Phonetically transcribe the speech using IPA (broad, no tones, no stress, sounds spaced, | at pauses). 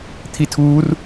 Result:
t̪ʰ i tʰ uː r